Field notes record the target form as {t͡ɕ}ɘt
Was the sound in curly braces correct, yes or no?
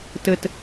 no